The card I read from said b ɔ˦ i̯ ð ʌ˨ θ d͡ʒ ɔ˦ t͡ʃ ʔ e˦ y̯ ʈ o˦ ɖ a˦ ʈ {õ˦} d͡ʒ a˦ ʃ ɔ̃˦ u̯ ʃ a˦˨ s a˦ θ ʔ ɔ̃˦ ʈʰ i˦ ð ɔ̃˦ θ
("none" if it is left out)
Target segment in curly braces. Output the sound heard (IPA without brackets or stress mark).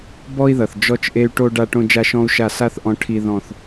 õ˦